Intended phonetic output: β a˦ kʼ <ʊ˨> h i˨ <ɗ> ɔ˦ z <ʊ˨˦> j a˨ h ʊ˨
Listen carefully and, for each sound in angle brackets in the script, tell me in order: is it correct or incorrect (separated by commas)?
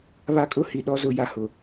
incorrect, correct, correct